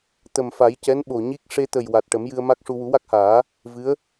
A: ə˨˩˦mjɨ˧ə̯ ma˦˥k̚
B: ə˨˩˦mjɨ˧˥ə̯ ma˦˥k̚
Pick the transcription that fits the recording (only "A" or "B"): A